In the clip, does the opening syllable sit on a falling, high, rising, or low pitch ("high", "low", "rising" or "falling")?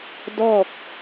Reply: falling